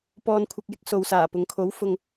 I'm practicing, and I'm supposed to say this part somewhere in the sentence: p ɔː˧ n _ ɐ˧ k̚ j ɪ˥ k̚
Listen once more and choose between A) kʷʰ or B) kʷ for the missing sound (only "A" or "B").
A